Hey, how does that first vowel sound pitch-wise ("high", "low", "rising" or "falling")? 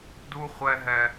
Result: high